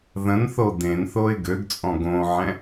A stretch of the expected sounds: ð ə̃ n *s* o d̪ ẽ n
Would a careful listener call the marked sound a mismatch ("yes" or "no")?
yes